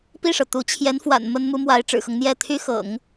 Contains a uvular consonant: no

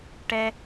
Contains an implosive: no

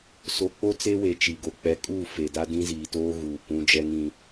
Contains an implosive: no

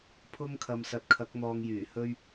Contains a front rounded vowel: yes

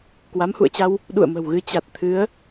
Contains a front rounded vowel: no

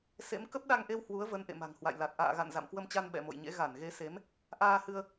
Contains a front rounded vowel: no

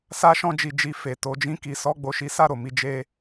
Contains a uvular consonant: no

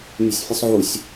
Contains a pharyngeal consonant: yes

